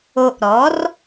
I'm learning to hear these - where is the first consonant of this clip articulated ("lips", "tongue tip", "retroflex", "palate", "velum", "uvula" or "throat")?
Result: throat